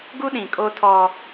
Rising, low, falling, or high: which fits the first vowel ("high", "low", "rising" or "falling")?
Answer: high